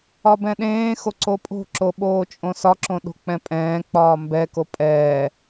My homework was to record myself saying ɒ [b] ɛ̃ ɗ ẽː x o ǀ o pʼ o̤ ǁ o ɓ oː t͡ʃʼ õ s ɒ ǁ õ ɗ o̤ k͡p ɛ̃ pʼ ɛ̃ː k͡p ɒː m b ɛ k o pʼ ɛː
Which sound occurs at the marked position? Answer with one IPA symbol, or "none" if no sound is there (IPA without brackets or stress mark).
b